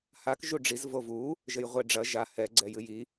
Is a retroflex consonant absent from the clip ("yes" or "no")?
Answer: no